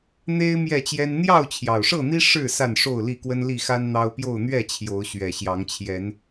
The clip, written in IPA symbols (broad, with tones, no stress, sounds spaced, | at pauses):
n̪ e˦ ɪ̯ m j ɛ˥˨ t͡ɕ j ɛ˦ n n̪ j ɑ˥˨ ʊ̯ t͡ɕʰ j ɑ˨˩ ʊ̯ ʂ ɤ˥˨ n̪ i˦ ʂ ɻ̩˥˨ s a˥˨ n ʂ o˥˨ ʊ̯ l i˥˨ k w ə˦ n l i˥˨ x a˦ n n̪ ɑ˦ ʊ̯ p j o˥˨ ʊ̯ n̪ ɥ ɛ˥˨ t͡ɕʰ j o˨˦ ʊ̯ ɕ ɥ ɛ˨˩ ɕ j ɑ˨˦ ŋ t͡ɕʰ j ɛ˨˦ n